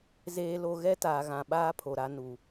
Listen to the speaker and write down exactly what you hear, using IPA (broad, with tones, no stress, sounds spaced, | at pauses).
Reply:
z eː˨ l o˨ ɣ ɛ˦ t aː˨ ɣ ã˨ ɓ aː˦ pʰ o˨ ɾ a˦ n u˨